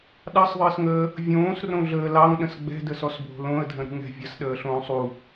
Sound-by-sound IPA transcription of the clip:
ɗ ɑ sˤ ðˤ əː s ŋ əː | vʲ õː s r õ ɮ əː l ɑ ŋ ɗ ə̃ s ɡ͡b ɛ̤ d ə s ɔ s bʱ o̤ l õ ə̯ dʱ ə̃ ɾ ṳ ŋ ɛ̤ vʲ ɐ s ɗ əː ɬ õː sˤ u

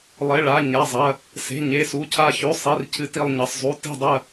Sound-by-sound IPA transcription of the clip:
lˠ e˩˧˩ ɭ a˩˧˩ ɲ a˩˧˩ zˤ ɐ˩˧˩ | s e̤˩˧˩ ɲ e˩˧˩ s u˩˧˩ cʰ a˧˩ ç ʉ˩˧˩ sˤ i˩˧˩ r cʰ ɨ˧˩ t i˧˩ lˠ ɲ ɐ˩˧˩ sˤ zˤ u˩˧˩ t i̤˧˩ dˤ ɐ˧˩

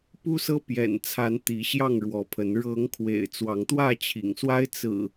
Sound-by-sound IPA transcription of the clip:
p u˦ s ɤ˦ p j ɛ̰˨˩ n t͡sʰ a˨˦ n t̪ i˨˦ ɕ j ɑ˥˨ ŋ ɻ w ɔ˨˦ pʰ ə˨˦ n ɻ ɤ˨˦ ŋ kʰ w ḛ˨˩ ɪ̯ t͡s w ɑ˨˦ ŋ t̪ w ä˥˨ t͡ɕʰ ḭ˨˩ ŋ s w a˦ ɪ̯ t͡s ɹ̩˨˩

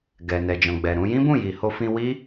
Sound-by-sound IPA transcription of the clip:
ɡ ɛ˨ n ɛ˨ d͡ʒ ɔ̃˨ ɡ͡b ɛ˨ ɾ ũ˧ j ĩ˦ b ũ˦˨ j i˨ h o˧ f ĩ˧ w i˦

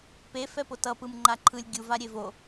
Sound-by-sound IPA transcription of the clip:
p e f ɛ p o t ʌ p ɯ m ŋ͡ǃ a ǃʰ ɯ lʲ ɡʲ u v a ɾʲ e v o

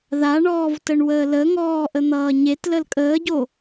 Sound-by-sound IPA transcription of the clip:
ð a ɳ ɔː v t ə ɳ w əː l ə ŋ ɔː ʔ ə n̪ ʌː ɲ e t l ə l kʼ əː ɟ o

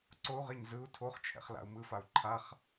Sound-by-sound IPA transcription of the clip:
ǀ o u̯ ʁ e ɲ z ɯ u̯ tʰ o χ t͡ʃʰ ɛ̰ χ l a̰ u̯ m ɯ f a u̯ ǃʰ a χ

